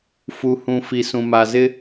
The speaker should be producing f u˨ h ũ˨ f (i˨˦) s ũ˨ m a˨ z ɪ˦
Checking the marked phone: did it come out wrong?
yes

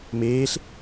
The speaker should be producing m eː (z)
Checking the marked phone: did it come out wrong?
yes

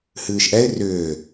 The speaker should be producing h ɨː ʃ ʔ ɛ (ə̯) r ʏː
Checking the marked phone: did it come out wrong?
yes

